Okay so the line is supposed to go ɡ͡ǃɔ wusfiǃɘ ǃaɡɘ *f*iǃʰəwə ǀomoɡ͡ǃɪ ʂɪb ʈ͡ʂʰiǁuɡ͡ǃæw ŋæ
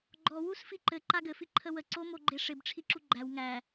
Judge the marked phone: correct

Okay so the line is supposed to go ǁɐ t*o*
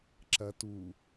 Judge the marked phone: incorrect: u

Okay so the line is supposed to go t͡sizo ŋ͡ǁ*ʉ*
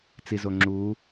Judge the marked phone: incorrect: u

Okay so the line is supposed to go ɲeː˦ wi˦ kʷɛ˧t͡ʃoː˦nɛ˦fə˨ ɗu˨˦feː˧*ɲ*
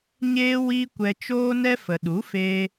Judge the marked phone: incorrect: none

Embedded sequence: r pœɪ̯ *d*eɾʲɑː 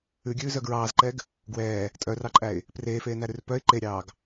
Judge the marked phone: incorrect: ǃ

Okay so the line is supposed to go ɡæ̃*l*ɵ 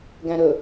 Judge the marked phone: incorrect: ɾ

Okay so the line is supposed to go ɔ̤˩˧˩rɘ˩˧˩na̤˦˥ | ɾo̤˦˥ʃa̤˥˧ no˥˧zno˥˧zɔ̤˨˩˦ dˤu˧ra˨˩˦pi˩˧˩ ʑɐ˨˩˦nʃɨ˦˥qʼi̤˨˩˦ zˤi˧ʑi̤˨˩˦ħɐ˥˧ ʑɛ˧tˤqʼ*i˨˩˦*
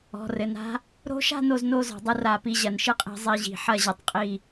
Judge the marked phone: incorrect: i˥˧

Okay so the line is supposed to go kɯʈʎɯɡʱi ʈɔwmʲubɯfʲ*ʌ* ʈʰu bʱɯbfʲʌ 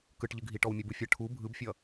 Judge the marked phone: correct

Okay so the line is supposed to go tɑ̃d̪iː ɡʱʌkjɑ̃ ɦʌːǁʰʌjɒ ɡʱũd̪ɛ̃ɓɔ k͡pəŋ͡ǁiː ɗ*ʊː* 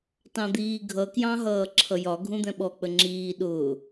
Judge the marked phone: correct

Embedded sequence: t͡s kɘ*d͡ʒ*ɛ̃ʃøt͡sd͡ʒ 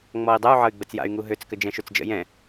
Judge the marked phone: correct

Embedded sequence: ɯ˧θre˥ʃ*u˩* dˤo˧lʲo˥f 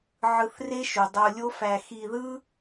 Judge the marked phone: correct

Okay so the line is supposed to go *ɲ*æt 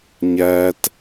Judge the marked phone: correct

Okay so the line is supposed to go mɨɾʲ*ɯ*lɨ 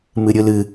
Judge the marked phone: correct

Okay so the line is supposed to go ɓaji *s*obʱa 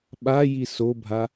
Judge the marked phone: correct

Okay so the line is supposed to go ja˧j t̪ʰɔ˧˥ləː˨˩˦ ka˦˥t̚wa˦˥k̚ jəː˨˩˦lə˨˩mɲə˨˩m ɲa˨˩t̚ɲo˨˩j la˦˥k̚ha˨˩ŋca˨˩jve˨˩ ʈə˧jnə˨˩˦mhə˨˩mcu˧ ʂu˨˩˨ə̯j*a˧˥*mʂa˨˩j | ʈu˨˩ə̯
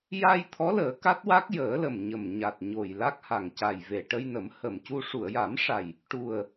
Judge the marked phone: incorrect: a˨˩˦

